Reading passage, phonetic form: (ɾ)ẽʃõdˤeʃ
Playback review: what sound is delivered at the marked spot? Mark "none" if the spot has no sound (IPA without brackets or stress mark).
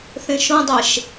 θ